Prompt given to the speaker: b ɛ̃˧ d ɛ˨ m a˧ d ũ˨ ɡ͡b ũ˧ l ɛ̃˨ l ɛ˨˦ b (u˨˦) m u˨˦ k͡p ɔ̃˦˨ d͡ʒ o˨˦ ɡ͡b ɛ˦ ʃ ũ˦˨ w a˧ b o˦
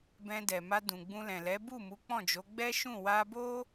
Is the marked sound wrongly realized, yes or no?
yes